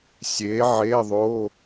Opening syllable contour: rising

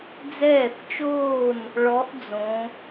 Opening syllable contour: falling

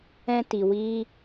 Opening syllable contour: high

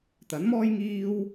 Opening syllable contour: rising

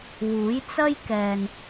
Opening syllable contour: rising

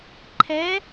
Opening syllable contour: rising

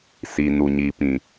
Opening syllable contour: low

